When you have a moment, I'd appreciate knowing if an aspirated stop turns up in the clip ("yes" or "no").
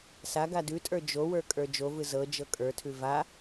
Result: yes